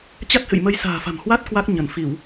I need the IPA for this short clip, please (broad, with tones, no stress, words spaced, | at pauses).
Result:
t͡ɕa˦˥t̚hɨ̰˧˨jmə˧j sa̤ː˨˩fa̤˨˩mhwa˦˥t̚ kwa˦˥k̚ ɲə˧˩nfi˧˩˨w